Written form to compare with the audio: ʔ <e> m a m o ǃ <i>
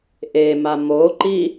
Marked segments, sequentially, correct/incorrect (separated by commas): correct, correct